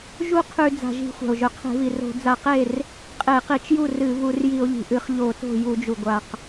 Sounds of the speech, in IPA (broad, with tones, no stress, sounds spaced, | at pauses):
ʒ u˥˩ qʰ ʉ˧˩˧ d͡z a̤˩ ʒ i̤˧˩˧ xʷ a̤˩ o̯ ʒ ɵ˩ qʰ e̤˧˩˧ v i˩ r o̤˧˩˧ d͡z a˧˩˧ q e˥˩ r | qʼ e˧˩˧ q i˧˩˧ t͡ʃ j u˥˩ r ɨ˧˩˧ v u˧˩˧ r j i˧˩˧ o̯ ʎ i̤˩ ʔ ɨ˧˩˧ χ ʎ o˧˩˧ t o̤˥˩ j u˧˩˧ d͡ʒ u˩ ɡʷ a˩ q